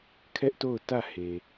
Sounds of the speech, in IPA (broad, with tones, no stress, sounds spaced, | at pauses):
kʰ ɛ˦ ʔ t o˦˨ ʊ̯ t ä˦˨ h e˨